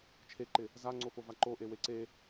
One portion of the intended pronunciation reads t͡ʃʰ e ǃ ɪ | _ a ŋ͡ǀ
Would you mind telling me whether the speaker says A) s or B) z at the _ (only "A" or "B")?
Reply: B